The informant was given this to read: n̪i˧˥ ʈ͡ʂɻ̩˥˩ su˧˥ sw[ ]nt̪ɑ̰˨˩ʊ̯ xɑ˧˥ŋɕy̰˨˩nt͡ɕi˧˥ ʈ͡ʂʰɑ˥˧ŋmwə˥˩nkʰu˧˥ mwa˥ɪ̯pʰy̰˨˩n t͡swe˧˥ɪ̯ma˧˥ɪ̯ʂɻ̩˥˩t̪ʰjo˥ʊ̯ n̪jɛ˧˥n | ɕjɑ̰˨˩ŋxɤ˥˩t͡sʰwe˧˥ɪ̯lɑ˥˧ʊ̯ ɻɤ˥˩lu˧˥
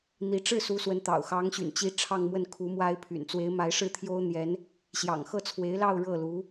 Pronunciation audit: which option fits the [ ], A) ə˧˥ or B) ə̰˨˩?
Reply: A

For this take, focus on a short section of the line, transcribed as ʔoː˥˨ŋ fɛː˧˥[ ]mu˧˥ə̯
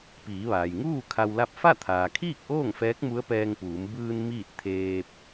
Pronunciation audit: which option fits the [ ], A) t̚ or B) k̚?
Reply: B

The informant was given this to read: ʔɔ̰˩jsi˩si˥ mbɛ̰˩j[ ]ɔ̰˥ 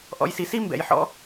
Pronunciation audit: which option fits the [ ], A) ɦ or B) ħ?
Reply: B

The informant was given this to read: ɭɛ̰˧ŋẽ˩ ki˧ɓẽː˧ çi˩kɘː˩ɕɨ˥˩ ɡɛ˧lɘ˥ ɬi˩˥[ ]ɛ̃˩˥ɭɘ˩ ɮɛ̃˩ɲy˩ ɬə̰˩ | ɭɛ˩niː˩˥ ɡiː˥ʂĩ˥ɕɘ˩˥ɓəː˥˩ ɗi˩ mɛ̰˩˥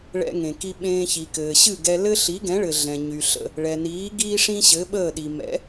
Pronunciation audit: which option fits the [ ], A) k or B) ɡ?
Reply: B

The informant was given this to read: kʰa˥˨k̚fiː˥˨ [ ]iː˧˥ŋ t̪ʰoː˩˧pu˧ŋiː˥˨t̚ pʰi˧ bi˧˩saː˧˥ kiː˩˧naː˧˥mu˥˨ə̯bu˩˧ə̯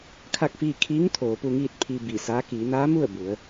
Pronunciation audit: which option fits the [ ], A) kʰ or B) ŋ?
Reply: A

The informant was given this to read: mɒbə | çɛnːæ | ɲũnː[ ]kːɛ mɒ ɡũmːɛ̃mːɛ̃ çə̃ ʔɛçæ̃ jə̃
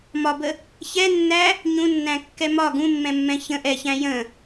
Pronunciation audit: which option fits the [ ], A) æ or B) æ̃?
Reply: B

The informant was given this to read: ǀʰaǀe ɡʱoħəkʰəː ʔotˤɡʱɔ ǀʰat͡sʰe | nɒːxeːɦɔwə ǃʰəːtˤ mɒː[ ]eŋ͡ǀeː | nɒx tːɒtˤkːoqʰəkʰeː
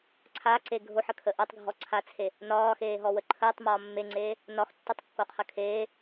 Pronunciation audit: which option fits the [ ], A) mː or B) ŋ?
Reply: A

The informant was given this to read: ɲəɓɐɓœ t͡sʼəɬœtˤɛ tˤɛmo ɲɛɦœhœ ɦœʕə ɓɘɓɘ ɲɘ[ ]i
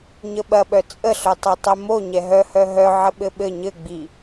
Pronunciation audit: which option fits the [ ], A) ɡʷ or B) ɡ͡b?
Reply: B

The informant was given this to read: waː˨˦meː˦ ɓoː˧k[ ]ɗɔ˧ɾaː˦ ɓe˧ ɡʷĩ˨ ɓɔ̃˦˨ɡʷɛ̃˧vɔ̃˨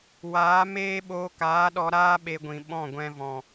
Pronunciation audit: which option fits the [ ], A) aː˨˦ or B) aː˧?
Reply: A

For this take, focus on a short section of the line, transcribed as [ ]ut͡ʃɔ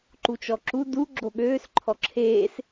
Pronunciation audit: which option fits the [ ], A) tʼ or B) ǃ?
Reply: B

